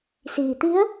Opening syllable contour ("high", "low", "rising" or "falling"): low